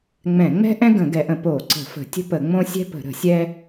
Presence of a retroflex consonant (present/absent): absent